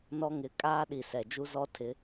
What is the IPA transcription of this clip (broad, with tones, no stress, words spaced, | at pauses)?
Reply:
nɔ˦ŋɪ˨˦ kʼaː˦ɗi˨ sɛ˨ d͡ʒu˦zɔ˦tʰɪ˨˦